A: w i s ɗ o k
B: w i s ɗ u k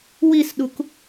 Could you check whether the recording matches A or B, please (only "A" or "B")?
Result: B